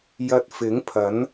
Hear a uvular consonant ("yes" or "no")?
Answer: no